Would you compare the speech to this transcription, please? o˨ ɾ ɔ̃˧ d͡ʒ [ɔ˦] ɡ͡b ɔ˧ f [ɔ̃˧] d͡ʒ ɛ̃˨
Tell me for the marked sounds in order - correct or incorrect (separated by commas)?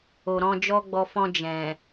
correct, correct